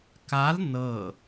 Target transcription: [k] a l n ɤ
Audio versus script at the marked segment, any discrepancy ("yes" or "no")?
no